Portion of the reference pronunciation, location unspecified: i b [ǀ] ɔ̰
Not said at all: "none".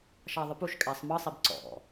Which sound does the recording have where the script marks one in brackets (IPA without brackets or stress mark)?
ǀ